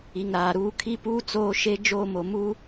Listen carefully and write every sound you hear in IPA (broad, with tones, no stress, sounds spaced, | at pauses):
i˨ ŋ ɾ aː˨ ɾ uː˦ kʰ i˦ p uː˦ t͡s oː˦ ʃ e˦ d͡ʒ oː˦˨ m o˨ m u˦